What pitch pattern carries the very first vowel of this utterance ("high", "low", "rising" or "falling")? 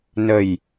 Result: low